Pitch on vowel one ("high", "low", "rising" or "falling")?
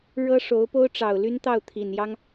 high